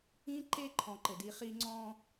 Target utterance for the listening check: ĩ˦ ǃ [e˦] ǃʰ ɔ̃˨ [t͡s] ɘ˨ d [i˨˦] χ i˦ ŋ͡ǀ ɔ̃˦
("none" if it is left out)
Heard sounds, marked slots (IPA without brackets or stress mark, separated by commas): e˦, ǃ, i˨˦